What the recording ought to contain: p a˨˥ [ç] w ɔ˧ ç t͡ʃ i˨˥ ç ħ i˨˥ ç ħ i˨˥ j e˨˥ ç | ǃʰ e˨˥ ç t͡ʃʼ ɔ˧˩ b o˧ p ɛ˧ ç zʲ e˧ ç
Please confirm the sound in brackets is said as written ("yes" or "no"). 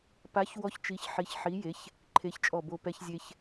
yes